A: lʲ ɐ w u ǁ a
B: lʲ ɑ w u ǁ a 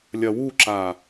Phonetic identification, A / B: A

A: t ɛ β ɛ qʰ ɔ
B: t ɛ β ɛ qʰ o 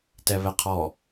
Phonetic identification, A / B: A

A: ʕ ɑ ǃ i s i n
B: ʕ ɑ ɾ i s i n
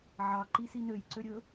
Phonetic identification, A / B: A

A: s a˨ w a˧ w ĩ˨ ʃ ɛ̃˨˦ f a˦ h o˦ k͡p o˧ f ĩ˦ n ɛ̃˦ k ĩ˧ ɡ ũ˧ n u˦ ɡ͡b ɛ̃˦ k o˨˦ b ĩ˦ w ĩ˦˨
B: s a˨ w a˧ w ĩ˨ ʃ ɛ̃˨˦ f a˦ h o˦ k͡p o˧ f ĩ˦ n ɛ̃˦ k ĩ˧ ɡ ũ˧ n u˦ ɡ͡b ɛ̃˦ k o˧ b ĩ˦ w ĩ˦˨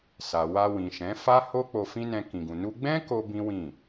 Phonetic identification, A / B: B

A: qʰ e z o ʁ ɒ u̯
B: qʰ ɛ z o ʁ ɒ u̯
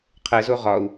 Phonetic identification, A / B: B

